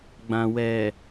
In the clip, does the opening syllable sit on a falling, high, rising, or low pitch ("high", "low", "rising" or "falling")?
low